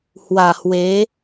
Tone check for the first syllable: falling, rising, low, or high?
low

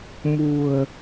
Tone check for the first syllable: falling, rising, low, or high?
low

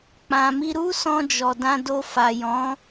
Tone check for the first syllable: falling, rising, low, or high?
low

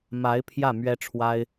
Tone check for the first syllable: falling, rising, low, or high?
rising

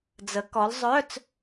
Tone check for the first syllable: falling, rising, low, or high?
rising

